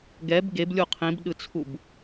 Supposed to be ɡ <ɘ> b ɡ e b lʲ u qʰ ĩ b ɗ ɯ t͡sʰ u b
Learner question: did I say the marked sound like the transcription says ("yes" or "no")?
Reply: no